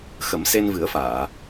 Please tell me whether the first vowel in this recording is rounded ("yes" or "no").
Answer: no